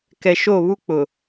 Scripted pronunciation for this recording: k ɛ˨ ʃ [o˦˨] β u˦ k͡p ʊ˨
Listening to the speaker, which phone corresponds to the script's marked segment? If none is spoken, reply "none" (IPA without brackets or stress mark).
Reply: o˦˨